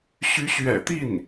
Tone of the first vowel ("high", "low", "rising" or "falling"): rising